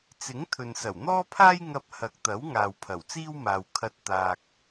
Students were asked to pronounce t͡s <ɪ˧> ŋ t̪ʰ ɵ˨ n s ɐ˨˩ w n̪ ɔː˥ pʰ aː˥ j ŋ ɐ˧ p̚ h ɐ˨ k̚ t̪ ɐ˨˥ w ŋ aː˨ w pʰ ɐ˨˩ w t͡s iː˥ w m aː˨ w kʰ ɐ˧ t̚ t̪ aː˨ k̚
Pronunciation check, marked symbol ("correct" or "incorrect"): incorrect